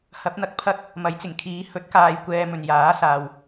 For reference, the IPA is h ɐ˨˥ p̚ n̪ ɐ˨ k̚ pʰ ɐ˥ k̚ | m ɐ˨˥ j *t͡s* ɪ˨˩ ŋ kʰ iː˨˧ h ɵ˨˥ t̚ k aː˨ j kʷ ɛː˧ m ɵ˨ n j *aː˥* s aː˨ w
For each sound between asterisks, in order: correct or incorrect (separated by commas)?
correct, incorrect